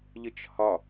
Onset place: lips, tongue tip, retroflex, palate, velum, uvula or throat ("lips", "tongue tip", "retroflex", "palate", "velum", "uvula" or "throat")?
palate